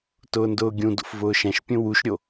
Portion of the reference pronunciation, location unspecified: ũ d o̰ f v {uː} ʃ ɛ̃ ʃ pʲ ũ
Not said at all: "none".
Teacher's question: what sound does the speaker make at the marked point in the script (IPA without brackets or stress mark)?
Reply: ʊː